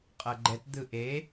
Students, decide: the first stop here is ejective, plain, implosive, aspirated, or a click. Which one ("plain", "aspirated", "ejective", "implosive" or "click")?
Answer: ejective